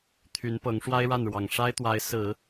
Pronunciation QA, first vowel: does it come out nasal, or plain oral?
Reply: oral